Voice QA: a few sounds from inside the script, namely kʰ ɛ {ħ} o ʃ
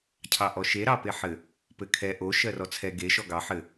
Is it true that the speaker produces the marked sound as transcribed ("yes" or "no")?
no